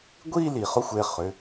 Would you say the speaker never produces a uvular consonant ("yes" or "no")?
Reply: no